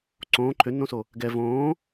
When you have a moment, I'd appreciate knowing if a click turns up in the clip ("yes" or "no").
yes